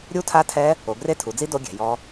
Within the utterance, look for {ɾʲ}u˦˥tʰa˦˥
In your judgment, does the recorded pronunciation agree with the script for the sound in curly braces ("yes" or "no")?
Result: yes